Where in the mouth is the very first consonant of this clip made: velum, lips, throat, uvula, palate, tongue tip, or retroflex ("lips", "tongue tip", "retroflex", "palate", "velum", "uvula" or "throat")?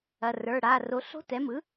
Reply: tongue tip